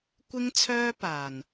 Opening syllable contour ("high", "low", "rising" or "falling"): high